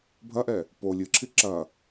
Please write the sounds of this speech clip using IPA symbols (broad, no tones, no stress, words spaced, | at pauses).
bʱɐʔɛ | po lʲɨǁʰi ǁɐ